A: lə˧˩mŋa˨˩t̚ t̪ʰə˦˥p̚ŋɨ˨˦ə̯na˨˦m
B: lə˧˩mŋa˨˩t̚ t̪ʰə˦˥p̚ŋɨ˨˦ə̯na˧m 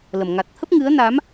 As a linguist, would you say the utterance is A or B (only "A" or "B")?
A